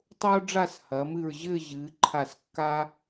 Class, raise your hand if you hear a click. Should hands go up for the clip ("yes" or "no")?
yes